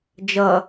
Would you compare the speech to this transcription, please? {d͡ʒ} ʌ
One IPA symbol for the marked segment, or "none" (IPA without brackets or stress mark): d͡ʒ